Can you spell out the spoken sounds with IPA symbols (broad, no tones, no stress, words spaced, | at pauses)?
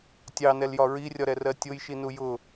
tʲɑnɛljɒ ɹirʲɒɾɛrɜ tʲʊjʃinu jʊ